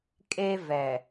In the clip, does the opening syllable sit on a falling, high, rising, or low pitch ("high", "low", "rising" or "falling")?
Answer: high